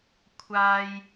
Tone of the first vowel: high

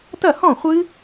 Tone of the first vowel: falling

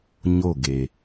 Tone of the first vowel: falling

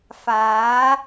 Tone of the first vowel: rising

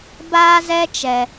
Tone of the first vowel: high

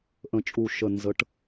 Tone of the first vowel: low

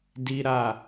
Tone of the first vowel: high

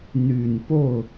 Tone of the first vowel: low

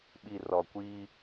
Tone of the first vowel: low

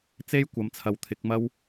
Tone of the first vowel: high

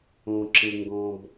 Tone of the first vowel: low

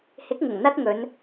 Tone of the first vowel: rising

